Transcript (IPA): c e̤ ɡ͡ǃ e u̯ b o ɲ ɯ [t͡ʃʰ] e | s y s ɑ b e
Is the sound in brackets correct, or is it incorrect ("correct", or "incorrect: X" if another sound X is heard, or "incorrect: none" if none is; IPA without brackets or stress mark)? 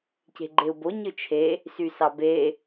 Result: correct